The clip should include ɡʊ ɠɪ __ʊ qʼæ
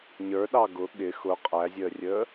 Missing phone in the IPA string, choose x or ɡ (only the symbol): x